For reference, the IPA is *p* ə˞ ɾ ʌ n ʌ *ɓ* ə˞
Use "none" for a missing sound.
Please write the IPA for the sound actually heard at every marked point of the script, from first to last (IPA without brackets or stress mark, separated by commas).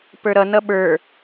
p, ɓ